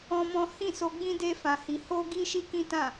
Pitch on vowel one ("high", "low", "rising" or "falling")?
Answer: high